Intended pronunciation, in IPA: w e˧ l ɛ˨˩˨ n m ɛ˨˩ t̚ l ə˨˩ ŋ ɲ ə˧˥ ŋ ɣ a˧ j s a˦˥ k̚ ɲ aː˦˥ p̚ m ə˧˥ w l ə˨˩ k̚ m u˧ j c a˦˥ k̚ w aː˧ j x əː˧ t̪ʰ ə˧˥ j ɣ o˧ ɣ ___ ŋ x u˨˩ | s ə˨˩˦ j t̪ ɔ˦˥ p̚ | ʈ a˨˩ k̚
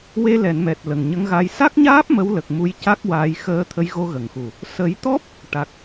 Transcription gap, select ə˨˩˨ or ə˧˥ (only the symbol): ə˨˩˨